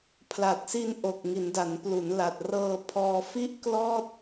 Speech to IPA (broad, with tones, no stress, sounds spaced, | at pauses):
pʰ l a˨˩ t̚ s i˧ n ʔ o˨˩ k̚ ŋ i˩˦ n d a˩˦ n p l u˩˦ n l a˨˩ t̚ r ɤː˧ pʰ ɔː˧ f i˥˩ ʔ k l ɔː˥˩ t̚